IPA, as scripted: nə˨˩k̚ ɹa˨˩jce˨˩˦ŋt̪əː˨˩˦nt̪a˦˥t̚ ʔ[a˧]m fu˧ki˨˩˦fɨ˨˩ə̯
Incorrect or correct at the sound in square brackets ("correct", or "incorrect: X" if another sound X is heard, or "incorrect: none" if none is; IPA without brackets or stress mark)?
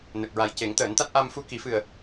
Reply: correct